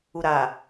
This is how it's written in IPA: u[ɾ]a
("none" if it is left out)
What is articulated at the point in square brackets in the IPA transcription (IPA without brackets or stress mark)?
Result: ɾ